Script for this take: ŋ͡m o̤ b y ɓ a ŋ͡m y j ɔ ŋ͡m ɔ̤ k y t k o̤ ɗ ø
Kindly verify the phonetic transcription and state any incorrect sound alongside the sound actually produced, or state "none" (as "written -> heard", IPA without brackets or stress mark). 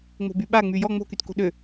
ɔ̤ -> o̤